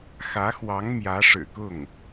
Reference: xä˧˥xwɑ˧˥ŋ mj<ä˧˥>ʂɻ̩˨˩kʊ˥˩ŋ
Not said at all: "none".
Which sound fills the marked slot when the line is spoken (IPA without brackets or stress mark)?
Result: ä˧˥